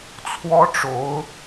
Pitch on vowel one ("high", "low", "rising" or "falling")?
high